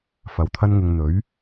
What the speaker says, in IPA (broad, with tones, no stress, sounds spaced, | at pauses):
f ɐ˨˧ w t̪ʰ ɐ˥ n ŋ ɪ˧ ŋ n̪ ɵ˨˥ ɥ